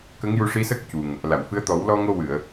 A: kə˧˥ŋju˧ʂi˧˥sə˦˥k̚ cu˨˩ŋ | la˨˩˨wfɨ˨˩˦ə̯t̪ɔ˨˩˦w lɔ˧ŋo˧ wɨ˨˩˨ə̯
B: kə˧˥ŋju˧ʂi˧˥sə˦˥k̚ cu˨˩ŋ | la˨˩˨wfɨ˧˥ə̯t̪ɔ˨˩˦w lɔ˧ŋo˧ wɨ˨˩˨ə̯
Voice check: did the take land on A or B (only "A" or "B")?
B